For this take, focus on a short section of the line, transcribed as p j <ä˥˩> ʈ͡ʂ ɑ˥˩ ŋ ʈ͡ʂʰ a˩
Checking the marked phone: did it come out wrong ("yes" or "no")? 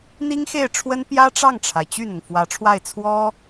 yes